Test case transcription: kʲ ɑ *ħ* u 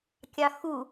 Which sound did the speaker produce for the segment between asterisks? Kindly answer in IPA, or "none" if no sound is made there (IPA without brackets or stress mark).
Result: x